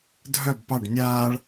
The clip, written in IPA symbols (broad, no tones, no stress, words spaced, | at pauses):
dʱœb pɑɖ nʲaːɭ